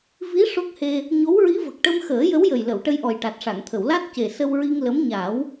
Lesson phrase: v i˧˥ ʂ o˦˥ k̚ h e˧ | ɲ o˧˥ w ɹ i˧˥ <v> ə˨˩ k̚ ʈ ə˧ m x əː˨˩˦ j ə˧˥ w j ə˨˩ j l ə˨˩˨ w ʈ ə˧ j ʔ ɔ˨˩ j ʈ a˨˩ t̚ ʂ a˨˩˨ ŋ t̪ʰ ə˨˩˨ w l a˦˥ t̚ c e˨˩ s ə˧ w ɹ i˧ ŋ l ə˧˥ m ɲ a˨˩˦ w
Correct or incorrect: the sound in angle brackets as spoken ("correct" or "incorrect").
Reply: correct